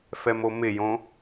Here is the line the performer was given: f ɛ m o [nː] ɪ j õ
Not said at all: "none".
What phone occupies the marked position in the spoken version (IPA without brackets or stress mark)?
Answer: m